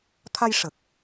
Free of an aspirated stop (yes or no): no